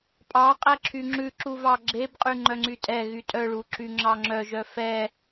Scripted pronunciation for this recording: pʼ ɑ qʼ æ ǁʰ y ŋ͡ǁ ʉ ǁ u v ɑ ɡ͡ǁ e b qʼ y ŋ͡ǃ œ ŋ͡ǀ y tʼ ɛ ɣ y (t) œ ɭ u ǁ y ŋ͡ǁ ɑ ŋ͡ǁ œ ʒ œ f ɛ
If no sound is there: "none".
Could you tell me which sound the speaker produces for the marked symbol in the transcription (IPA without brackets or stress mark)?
tʼ